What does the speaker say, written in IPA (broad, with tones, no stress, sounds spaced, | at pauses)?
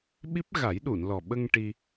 ɓ i˦˥ p̚ ɣ a˨˩˦ j ɗ u˨˩˨ n l ɔ˨˩ ɓ ə˧ ŋ ʈ i˧